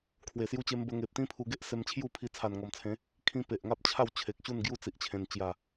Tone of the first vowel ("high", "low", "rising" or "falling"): low